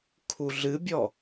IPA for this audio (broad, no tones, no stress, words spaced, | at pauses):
kʰuɮɨbʲɔ